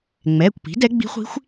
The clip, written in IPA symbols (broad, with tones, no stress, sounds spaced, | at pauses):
ŋ͡m ɛː˩˧˩ kʷ p i̤˩˥ d ɛ˧˥ ɡ͡b i̤˧˥ χʷ i̤˧˥ xʷ